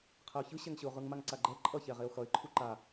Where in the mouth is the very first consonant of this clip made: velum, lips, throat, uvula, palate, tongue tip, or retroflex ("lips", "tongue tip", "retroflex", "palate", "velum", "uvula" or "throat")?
uvula